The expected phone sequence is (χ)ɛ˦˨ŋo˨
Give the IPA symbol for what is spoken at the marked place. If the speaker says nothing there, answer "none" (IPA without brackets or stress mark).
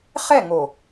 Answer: χ